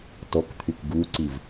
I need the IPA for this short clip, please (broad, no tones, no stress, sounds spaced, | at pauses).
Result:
t ɔ k t̪ʰ y k ɡ u ǀ i v